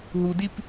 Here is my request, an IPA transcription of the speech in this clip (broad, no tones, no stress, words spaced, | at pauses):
ɦudip